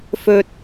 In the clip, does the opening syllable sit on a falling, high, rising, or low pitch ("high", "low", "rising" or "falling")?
high